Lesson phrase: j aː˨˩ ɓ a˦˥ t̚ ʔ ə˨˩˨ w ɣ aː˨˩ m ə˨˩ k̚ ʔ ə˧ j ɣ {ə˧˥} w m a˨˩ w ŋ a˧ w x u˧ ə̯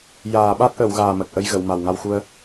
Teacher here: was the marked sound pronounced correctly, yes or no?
no